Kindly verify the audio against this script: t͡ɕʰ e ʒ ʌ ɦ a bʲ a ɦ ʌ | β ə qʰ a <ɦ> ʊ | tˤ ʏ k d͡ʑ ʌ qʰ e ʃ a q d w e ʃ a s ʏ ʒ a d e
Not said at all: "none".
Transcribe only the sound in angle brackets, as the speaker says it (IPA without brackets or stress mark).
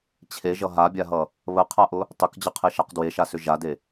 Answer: ʔ